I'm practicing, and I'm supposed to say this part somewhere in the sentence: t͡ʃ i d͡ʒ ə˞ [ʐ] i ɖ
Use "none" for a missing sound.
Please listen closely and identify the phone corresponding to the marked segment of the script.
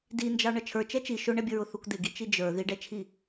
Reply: ð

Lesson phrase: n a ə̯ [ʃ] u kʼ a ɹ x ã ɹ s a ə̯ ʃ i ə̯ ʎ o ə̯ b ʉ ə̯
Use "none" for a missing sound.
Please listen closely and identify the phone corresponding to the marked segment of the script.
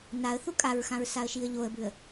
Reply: θ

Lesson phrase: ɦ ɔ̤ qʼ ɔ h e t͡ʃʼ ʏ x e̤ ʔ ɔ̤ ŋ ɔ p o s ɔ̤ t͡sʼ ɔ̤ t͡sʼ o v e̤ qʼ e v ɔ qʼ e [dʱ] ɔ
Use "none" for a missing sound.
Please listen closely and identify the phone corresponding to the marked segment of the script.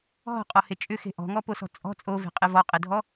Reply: dʱ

